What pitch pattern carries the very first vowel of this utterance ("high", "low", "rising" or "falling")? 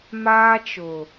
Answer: high